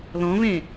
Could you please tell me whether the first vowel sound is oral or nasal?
nasal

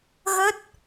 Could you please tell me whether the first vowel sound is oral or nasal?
oral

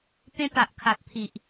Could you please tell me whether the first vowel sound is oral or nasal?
nasal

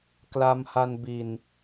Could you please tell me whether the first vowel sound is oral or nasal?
oral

